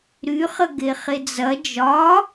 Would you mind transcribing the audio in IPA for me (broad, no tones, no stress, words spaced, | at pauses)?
ɾyχə ɡeχed͡zɐ d͡ʒɒ